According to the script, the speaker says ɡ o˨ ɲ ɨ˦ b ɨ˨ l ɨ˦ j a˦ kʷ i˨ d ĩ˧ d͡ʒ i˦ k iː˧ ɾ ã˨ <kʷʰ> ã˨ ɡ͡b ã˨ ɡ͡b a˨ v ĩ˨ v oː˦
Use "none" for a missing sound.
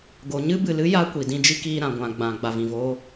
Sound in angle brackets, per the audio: ɡʷ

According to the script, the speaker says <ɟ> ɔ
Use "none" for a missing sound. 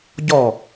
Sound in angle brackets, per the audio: ɟ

